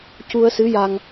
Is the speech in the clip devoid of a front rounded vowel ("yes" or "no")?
yes